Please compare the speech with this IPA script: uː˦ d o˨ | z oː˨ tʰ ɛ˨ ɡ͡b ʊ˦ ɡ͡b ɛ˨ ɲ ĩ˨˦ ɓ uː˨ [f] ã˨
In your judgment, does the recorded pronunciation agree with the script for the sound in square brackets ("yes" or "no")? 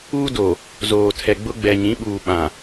no